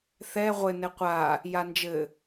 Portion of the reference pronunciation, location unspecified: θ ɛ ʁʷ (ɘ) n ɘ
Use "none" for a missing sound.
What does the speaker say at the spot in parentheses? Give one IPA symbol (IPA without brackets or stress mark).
ɘ